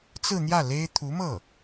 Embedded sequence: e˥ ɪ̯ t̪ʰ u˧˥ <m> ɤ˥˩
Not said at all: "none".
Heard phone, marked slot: m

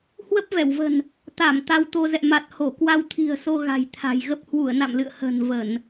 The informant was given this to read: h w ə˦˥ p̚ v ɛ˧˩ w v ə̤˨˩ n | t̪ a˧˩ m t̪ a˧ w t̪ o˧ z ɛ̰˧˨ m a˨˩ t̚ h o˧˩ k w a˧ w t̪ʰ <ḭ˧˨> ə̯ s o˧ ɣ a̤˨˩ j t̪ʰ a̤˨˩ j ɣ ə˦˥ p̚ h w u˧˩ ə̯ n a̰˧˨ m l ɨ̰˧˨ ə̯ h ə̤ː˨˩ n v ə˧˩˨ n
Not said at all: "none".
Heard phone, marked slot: i̤˨˩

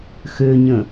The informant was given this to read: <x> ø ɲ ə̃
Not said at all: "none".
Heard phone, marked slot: x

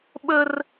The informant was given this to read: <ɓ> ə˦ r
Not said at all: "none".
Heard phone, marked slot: ɓ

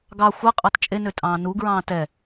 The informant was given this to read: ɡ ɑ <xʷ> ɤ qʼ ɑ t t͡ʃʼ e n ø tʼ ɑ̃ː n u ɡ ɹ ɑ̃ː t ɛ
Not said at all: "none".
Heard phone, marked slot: xʷ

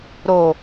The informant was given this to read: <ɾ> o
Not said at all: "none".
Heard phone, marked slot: ɾ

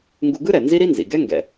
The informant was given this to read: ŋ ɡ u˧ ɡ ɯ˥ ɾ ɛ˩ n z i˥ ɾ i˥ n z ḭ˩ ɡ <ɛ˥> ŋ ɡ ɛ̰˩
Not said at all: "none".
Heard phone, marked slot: ɛ˥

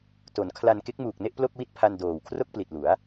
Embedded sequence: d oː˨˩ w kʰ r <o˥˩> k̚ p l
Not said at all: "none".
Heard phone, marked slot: o˥˩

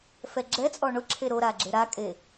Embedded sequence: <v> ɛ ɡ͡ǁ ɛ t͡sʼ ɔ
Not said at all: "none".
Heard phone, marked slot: f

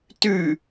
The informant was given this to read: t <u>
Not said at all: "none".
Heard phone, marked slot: ʉ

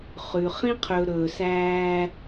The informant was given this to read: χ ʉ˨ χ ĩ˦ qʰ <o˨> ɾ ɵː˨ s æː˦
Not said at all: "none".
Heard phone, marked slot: ɵ˨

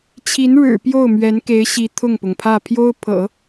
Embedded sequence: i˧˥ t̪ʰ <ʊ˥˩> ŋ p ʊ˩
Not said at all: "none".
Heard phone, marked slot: ʊ˥˩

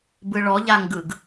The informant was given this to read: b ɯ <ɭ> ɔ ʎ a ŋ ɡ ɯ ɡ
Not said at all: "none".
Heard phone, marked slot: ɭ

